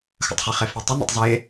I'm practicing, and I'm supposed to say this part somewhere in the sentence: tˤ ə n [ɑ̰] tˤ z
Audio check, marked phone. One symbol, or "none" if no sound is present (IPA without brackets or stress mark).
ə̰